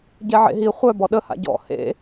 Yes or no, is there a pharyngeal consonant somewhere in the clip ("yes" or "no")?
yes